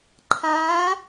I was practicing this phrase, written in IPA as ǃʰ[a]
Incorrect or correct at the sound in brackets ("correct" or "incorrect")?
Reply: correct